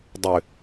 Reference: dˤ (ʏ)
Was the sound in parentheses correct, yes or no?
yes